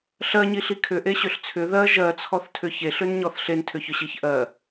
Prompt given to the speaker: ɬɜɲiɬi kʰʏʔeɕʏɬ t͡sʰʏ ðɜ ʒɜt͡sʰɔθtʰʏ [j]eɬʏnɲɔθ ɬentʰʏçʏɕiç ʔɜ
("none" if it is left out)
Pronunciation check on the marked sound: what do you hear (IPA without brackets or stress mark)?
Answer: ç